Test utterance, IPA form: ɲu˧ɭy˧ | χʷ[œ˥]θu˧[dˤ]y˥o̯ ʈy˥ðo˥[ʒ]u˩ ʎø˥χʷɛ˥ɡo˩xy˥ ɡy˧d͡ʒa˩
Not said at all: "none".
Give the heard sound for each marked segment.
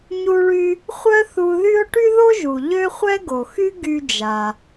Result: œ˥, ð, ʒ

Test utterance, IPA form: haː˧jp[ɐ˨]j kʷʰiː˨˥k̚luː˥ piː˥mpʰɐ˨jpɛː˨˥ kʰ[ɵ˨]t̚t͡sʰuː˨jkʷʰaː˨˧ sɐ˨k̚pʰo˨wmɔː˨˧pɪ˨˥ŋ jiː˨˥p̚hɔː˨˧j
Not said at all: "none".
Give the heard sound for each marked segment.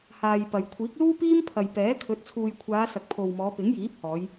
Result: ɐ˨, ɵ˨˥

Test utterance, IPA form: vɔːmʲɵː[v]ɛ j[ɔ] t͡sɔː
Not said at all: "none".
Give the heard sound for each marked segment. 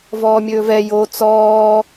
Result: v, o

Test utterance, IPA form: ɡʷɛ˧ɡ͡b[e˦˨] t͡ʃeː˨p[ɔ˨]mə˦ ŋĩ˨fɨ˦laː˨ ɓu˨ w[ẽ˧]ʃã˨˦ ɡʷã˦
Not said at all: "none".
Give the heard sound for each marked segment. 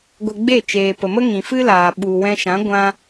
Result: e˦˨, ə˨, ɛ̃˧

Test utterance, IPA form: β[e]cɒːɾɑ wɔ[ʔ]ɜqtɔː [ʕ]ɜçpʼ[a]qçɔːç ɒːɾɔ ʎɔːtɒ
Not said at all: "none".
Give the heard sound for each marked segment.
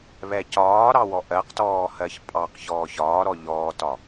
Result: ɛ, ʔ, h, ɑ

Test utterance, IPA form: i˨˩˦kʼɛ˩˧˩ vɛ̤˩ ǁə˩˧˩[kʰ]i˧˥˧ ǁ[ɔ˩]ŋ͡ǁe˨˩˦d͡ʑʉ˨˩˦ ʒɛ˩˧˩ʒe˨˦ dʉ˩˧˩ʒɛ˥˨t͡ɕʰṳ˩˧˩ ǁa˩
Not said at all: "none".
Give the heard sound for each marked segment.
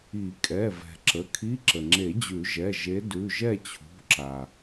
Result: kʰ, ə˩

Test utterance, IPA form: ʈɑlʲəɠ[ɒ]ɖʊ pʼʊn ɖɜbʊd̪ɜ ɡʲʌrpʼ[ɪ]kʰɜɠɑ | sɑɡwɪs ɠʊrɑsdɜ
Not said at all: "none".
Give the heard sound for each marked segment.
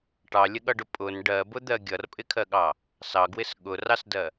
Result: ʌ, ɪ

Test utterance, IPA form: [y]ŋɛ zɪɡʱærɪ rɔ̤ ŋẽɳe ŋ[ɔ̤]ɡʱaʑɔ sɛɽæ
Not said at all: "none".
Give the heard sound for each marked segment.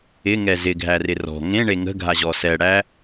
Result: ɪ, ə̤

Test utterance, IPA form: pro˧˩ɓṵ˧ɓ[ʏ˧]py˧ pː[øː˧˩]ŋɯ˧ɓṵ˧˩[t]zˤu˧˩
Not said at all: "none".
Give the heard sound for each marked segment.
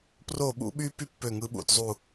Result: y˧, ø˧˩, t

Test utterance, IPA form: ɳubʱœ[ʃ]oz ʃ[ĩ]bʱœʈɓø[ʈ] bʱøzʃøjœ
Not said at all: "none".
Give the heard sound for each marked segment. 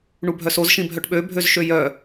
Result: s, ĩ, none

